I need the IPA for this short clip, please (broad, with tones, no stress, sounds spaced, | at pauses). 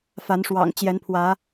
f a˨˦ n ʂ w ɑ̰˨˩ ŋ t͡ɕ j ɛ˨˦ n pʰ w ä˨˦